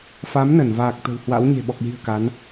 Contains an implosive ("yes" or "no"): yes